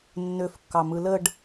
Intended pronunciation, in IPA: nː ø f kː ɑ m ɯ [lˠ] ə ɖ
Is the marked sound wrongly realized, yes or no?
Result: yes